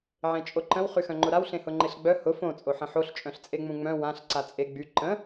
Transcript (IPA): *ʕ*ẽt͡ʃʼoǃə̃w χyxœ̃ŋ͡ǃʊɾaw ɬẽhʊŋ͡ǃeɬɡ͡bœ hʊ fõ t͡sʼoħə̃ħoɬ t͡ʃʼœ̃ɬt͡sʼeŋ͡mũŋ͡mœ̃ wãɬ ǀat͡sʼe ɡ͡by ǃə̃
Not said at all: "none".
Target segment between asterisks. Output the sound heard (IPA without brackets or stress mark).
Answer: ʕ